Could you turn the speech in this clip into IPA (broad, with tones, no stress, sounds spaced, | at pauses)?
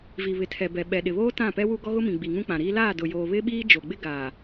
v i˨ β ɪ˨ tʰ ɛ˨ b ɛ˨ ɓ ɛ˨ ɗ ɪ˨ β oː˦ t ã˦˨ p ɛ˦ w u˦ ɡ ɔ˦ ɣ ʊ˦ m ĩ˨ ɡ͡b i˨ ŋ ũ˦ k͡p ã˨ ɾ iː˦ l aː˦˨ d ʊ˨ j oː˨ β ɪ˦ ɓ iː˦ d͡ʒ o˨ ɡ͡b ɪ˦ ɡ aː˨